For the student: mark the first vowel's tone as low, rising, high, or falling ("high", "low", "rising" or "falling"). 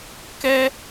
high